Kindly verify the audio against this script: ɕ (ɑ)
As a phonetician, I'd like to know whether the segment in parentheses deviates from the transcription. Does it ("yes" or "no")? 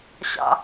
yes